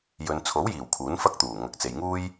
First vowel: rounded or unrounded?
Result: rounded